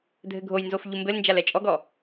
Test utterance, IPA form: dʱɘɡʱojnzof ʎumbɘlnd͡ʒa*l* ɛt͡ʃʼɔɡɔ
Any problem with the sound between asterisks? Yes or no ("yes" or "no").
no